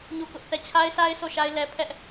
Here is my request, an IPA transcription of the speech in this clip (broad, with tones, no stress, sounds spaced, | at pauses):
ɲ u˦˨ k ʊ˦ ʔ θ ɛ˦˨ t͡ɕʰ a˦ ɪ̯ s a˦ ɪ̯ sʰ o˦˨ ʃ a˦ ɪ̯ l ɛ˦ pʰ ɛ˦ ʔ